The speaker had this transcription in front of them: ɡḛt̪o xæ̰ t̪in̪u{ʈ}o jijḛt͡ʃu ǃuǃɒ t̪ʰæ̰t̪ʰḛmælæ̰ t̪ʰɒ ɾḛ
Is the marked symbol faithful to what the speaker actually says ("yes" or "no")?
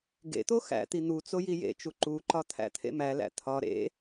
no